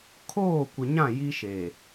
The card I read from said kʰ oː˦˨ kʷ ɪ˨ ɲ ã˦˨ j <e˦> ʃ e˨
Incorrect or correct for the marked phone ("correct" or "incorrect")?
incorrect